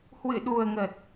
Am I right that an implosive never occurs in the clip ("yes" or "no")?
no